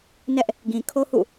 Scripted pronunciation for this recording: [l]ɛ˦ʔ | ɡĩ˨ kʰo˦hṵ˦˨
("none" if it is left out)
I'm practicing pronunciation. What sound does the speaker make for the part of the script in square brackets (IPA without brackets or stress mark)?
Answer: n